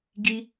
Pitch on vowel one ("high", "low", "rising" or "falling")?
high